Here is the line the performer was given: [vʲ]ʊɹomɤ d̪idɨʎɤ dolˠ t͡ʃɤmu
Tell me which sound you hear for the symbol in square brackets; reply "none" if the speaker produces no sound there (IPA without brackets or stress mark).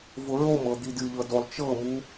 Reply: v